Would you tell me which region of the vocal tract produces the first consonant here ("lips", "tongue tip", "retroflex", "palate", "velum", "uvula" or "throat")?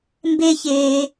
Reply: lips